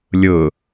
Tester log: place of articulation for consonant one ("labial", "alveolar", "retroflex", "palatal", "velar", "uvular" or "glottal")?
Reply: alveolar